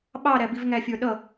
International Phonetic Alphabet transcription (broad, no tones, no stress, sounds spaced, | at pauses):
ɓ ɑ ɾ æ b i v ŋ æ fʲ ə˞ ɗ ʌ